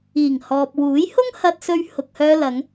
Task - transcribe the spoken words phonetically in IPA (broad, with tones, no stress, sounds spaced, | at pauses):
iː˨˩ ŋ h ɔː˨ p̚ w uː˨˥ j h ʊ˥ ŋ h ɐ˧ t̚ s ɵ˧ ɥ h ʊ˨ k̚ h œː˧ l ɐ˨˧ ŋ